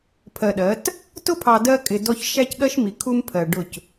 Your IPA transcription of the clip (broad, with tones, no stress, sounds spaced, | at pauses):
pʰ ɜ˨ ɗ ɜ˨˦ t | t ʊ˦ pʰ ɑ˨ d ɜ˦ kʼ ɪ˨ d ɔ˦ ç ʃ æ˦ c ɠ ɜ˦ ʃ m i˨ kʰ u˦ m pʰ ɜ˨ ɖ ʊ˦˨ c